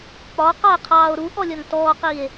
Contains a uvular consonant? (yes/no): yes